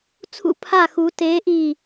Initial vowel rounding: rounded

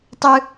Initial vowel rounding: unrounded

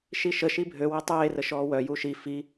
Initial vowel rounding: unrounded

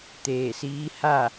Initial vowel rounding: unrounded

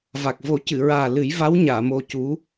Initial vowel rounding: unrounded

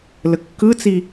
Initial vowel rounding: unrounded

